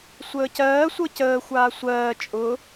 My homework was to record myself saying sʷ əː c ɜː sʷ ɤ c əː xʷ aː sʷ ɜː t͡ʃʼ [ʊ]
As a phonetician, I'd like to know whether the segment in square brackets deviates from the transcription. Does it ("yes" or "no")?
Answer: no